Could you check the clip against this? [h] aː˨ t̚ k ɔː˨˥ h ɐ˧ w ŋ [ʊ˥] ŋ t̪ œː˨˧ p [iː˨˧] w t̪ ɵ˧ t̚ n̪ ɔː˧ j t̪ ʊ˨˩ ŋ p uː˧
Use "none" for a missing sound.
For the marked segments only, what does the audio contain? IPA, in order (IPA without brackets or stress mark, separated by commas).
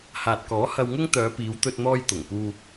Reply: h, ʊ˥, iː˨˧